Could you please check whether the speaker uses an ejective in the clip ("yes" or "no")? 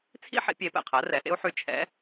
no